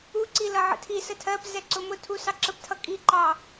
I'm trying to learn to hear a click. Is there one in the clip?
yes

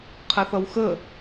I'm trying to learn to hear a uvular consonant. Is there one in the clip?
yes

